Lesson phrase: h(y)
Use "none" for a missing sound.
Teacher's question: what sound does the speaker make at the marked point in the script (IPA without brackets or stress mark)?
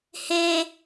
e